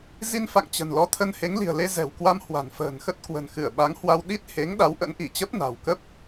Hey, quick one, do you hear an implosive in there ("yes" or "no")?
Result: yes